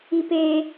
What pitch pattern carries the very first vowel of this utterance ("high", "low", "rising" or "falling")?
high